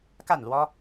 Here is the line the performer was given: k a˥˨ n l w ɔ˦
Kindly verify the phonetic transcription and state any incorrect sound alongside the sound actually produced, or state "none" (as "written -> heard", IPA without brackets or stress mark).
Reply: none